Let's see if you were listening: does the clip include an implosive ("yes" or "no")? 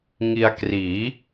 no